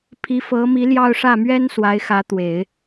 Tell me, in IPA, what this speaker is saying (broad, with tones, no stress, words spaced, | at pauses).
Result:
pʰi˧˥fɤ˧˥mi˧˥ljɑ˥˧ʊ̯ ʂä˥˩mɥɛ˥n swa˧˥ɪ̯xä˧˥t̪we˨˩˦ɪ̯